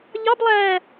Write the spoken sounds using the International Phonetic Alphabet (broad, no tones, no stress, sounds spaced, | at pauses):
ʎ ɑ b lˠ æː